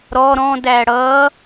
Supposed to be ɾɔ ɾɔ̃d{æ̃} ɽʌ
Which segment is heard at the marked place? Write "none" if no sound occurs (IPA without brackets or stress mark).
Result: æ